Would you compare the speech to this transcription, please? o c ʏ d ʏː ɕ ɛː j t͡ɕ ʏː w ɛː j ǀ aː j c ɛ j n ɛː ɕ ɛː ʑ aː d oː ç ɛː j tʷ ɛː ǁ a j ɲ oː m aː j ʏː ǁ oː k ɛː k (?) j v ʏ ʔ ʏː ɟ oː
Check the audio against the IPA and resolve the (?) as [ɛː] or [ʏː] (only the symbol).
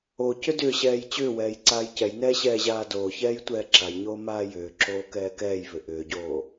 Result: ɛː